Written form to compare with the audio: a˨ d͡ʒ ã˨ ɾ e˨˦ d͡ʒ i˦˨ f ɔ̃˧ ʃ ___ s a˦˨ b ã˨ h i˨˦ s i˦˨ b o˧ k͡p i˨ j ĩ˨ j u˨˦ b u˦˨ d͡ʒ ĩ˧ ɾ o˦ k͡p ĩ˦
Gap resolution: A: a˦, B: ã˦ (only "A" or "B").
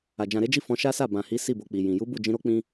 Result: A